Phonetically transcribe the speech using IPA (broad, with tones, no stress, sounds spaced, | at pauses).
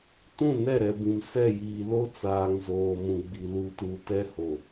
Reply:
t ũ˦˨ n ɛ˦˨ ɾ ɛ˨ b ĩ˨ m s ɛ˦˨ j iː˨ l o˦ t͡s aː˨ ŋ z oː˨ m ũ˨ ɡ͡b i˨ l u˨ t u˨ t ɛ˦ h o˨